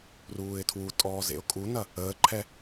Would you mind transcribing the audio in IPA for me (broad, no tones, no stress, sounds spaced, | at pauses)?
r uː ɪ̯ tʰ w u tʼ ɔː z ḛ ʊ̯ kʼ u n ɐ | əː ǃʰ ɛ